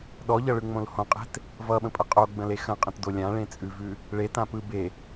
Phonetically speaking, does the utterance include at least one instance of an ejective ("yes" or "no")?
yes